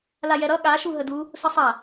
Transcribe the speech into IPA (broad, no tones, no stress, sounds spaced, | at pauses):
l a j ɛ ɾ ʌ ɠ a ʃ u ɦ ə d u | s ə sˤ a